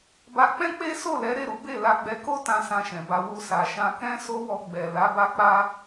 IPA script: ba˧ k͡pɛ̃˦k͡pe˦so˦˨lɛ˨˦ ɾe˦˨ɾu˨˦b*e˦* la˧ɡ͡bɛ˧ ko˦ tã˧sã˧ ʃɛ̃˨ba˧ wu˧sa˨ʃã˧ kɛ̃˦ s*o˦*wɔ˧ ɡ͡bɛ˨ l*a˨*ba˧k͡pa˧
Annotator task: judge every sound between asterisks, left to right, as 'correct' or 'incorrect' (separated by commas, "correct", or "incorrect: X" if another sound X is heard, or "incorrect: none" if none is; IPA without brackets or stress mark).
incorrect: e˦˨, correct, incorrect: a˨˦